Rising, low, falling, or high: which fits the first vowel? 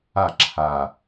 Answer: falling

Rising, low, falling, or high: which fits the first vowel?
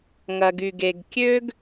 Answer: low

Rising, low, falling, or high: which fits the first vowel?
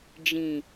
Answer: low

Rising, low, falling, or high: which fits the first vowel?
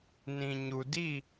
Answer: low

